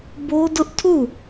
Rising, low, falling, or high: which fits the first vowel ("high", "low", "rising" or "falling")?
high